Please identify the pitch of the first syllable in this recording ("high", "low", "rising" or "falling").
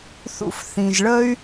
high